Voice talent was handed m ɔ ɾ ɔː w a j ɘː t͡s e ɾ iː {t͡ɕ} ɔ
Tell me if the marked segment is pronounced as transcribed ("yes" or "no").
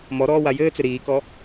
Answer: no